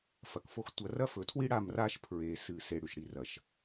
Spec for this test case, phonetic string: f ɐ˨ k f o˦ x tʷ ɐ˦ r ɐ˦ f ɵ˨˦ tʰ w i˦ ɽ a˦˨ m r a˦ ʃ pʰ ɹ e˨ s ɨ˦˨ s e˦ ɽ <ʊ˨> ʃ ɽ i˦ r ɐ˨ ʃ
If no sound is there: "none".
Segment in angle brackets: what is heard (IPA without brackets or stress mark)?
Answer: ʉ˨